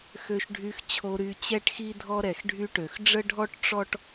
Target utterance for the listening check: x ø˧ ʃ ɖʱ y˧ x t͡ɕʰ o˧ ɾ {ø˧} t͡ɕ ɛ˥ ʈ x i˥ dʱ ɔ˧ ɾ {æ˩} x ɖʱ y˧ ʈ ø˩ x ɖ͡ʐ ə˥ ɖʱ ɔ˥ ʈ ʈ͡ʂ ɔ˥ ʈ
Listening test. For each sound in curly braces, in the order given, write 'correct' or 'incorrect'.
incorrect: y˧, incorrect: ɛ˩

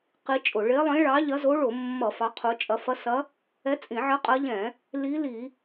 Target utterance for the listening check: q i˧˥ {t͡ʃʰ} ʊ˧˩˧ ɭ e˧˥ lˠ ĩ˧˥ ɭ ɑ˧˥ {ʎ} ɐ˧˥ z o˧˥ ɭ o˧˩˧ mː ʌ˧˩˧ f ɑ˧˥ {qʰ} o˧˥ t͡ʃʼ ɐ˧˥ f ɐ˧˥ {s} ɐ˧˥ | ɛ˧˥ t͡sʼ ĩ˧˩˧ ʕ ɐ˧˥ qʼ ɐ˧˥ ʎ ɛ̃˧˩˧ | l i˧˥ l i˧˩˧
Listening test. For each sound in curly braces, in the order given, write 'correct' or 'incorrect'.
incorrect: t͡ʃʼ, correct, correct, correct

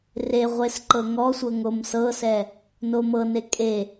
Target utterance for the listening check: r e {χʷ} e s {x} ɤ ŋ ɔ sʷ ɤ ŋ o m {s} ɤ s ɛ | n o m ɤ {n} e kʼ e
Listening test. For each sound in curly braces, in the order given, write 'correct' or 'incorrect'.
incorrect: ʁʷ, incorrect: ǃ, correct, correct

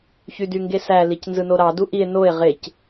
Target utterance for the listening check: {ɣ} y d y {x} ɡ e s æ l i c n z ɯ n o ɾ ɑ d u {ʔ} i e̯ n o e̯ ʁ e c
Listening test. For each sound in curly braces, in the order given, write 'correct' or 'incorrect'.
incorrect: ç, incorrect: ŋ, correct

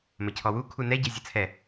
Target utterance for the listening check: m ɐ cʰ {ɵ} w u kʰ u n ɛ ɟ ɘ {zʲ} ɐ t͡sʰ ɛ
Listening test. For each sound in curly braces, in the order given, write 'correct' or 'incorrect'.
incorrect: ɔ, correct

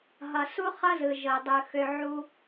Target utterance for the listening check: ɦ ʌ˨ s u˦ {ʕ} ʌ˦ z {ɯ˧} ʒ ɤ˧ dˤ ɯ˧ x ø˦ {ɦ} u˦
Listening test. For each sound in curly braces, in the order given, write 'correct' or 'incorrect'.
incorrect: χ, incorrect: ɯ˨, incorrect: ʕ

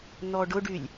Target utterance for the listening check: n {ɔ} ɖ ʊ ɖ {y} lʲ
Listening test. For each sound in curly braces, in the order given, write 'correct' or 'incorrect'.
correct, correct

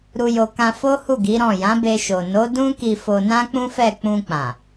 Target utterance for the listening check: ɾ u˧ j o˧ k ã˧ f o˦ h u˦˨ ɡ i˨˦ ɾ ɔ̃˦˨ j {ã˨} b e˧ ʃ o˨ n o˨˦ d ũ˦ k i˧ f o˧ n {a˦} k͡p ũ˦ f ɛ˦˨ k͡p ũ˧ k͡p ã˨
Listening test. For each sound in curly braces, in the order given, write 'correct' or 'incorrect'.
incorrect: ã˨˦, incorrect: ã˦

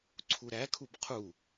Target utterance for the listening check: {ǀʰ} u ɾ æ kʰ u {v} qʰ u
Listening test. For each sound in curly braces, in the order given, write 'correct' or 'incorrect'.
correct, incorrect: b

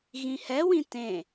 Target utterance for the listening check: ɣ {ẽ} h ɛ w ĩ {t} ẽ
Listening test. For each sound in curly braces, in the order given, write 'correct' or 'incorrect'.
incorrect: ĩ, correct

